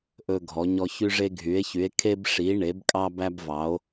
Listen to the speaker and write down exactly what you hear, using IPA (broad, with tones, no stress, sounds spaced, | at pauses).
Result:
ʔ ɵ˦ ɡʱ ɔ˨˦ ɲ ɔ˦ ç y˦ ʐ e˦ ɡʱ y˨˦ e̯ ç y˨˦ e̯ kʰ e˦ b ʂ i˨˦ ɳ e˨˦ b kʼ ɑ˦ b æ˦ b v ɑ˨˦ o̯